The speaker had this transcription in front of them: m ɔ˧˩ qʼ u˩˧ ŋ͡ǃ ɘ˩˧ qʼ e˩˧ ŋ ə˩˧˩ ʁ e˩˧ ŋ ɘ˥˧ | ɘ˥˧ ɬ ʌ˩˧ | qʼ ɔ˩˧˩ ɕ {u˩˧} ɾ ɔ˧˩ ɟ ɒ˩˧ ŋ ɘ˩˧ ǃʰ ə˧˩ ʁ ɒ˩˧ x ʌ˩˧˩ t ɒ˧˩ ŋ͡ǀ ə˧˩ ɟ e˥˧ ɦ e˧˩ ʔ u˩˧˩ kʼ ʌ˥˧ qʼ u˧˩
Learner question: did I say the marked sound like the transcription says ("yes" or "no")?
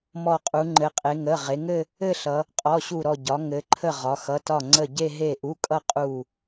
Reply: no